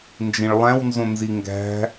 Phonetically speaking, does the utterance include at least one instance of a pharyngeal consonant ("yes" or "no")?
no